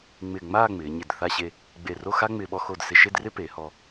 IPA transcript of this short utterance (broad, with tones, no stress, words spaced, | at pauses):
ŋ͡mɪ˧˩ŋ͡maː˥˧ ŋ͡mɪː˩˧ɲɪ˧˩d θa˥˧ɕe˥˧ | ɡ͡be˧˩ro˥˧xa˥ŋ͡mɪː˧ ɓɔ˧xo˧˩dsɪ˧˩ʃe˥˧d rɪ˥pe˩˧hɔ˧